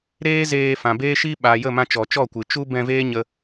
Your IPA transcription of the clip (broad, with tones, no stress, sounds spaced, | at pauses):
ɾ eː˦ z eː˧ f ã˨ b eː˦ ʃ i˦ ɓ a˨ j ə˦˨ m ã˧ t͡ʃ ɔ˨ t͡ʃ ɔ˦˨ kʷ ɨ˨ t͡ʃ u˦ b ɛ̃˧ v eː˦ ɲ ə˦